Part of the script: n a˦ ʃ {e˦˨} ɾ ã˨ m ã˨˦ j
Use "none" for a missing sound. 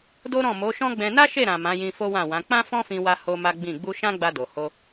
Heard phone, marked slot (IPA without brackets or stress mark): e˦˨